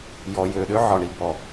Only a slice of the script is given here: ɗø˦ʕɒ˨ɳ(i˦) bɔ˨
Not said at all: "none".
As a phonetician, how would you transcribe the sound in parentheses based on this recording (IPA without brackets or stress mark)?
i˨